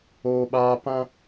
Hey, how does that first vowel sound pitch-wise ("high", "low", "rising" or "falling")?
high